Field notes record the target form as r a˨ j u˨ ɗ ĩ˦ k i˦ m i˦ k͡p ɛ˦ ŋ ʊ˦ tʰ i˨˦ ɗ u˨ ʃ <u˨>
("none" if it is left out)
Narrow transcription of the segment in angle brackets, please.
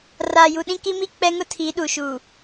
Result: u˨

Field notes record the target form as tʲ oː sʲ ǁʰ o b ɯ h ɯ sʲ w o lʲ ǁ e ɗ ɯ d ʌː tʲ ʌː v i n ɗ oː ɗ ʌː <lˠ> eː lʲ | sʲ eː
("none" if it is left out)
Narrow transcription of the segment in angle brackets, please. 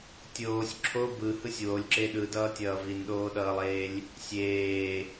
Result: lˠ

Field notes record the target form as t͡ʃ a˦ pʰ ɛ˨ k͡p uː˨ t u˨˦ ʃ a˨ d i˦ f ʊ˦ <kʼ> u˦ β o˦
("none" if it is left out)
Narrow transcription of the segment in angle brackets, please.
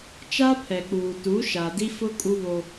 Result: kʼ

